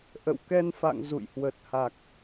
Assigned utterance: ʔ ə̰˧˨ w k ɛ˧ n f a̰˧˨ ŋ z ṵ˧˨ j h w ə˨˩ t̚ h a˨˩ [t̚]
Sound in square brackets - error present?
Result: yes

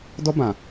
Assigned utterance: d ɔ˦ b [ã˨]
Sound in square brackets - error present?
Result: no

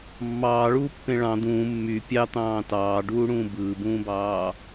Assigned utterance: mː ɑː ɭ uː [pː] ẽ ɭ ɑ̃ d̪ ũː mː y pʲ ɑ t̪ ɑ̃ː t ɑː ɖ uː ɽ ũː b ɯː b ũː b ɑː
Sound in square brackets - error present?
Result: no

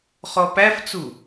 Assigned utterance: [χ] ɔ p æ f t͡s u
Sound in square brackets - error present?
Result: no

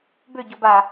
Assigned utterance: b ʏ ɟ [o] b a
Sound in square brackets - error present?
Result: no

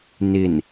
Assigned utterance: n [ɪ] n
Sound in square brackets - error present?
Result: no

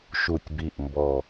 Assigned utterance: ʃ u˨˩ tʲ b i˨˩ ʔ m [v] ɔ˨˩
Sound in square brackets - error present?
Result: yes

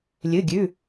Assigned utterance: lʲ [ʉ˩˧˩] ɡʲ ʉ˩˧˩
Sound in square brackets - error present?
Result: yes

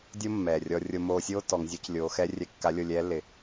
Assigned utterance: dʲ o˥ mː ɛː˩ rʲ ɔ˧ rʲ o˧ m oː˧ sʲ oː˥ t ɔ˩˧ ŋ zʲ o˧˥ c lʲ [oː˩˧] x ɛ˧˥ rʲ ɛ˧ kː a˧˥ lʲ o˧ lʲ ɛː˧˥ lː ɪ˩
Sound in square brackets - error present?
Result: no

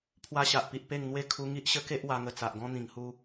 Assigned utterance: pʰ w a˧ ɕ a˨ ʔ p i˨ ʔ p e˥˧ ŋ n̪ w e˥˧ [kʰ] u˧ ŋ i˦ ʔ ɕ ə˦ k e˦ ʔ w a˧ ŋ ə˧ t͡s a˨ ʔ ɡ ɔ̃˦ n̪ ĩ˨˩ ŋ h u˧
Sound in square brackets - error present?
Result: no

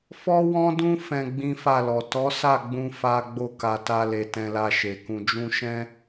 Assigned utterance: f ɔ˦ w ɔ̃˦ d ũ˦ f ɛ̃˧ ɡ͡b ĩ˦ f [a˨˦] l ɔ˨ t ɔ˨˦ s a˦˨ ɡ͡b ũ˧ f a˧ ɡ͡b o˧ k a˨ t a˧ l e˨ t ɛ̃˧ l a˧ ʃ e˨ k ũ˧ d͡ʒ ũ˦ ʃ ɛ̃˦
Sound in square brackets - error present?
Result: yes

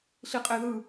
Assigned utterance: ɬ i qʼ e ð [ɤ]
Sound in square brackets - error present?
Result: yes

